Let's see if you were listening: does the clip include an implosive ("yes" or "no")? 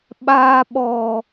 yes